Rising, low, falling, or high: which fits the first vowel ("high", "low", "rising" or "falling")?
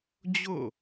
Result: falling